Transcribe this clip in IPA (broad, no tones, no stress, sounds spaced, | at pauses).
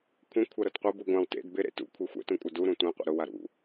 kʷʰ ẽ kʷʰ a ɾ ɤ t qʷ ɤ b u ɡʷ ã w t ḛ d b ɪ ɾ ḛ t ṵ kʷʰ e xʷ ɛ̰ t ũ kʷʼ a d u ɾ ũ tʷ ẽ qʷ ḛ ɾ ʊ w a ɾ ṵ